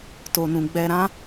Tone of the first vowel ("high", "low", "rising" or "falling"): low